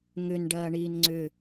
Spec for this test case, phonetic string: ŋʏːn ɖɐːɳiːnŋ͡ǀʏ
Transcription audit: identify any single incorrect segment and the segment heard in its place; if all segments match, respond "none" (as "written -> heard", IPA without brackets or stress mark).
ʏː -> ʏ